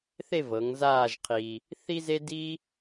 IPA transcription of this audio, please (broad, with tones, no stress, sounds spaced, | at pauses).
θ e˥˧ v ɤ˩˧ ŋ z aː˥˧ ʒ qʰ iː˧ | θ i˥ z e˥ d iː˥